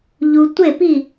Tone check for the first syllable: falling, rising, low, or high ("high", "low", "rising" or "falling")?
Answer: low